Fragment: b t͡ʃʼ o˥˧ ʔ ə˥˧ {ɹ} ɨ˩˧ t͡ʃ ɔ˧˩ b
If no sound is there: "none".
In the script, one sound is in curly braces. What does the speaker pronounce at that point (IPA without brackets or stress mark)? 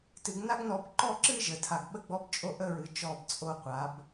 ɹ